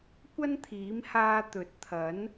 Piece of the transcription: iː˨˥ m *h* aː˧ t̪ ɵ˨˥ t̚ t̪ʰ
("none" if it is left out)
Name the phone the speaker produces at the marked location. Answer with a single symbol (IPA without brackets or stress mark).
h